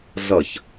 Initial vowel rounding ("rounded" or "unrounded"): unrounded